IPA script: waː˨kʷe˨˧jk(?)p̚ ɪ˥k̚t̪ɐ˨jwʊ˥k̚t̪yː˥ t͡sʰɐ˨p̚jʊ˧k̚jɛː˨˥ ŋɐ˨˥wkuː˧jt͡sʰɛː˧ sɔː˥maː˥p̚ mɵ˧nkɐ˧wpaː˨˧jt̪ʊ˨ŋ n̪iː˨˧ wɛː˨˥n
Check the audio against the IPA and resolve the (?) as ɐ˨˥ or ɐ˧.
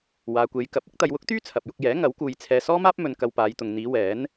ɐ˨˥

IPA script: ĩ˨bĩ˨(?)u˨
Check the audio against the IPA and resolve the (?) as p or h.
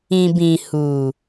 h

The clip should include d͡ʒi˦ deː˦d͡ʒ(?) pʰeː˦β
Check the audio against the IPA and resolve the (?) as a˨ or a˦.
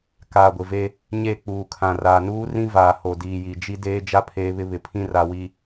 a˦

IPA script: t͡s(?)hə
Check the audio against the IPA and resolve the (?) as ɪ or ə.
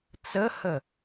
ə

